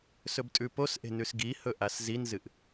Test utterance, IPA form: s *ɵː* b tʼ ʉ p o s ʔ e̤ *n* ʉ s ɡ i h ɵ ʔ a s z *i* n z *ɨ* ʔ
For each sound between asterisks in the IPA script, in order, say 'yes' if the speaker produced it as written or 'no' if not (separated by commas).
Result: no, yes, yes, yes